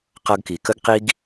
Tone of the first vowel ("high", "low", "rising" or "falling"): high